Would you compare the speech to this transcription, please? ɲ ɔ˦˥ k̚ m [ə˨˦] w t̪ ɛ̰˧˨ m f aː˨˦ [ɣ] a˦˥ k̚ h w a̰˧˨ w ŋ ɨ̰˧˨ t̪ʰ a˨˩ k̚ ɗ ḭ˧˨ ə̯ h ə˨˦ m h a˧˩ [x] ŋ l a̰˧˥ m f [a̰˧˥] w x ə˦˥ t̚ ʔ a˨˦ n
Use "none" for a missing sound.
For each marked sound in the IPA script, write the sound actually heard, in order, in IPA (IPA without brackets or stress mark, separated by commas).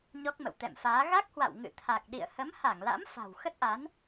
ə̰˧˨, ɣ, none, a̤˨˩